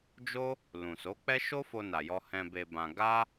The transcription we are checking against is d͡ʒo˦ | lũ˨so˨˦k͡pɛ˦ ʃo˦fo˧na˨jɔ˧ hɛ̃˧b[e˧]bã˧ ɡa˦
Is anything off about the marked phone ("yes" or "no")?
no